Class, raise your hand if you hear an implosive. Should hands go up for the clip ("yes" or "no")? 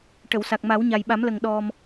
yes